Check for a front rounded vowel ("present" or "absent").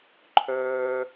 present